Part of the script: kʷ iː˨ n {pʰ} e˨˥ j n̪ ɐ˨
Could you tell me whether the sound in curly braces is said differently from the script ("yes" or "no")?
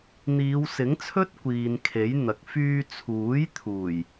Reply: yes